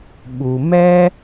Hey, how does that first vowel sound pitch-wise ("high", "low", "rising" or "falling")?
low